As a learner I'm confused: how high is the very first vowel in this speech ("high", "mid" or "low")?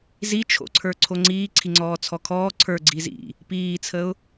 high